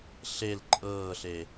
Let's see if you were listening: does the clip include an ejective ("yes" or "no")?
yes